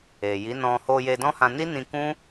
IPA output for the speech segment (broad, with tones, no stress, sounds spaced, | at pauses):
e˨ j i˨˦ n ɔ̃˧ h o˧ j e˧ d ɔ̃˦ h ã˧ n i˦ n ĩ˧ k ũ˦